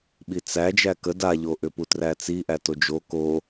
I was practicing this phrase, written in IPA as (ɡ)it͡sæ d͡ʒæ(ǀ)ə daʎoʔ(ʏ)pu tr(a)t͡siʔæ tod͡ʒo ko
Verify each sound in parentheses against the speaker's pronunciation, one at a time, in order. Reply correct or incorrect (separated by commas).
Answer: incorrect, incorrect, correct, incorrect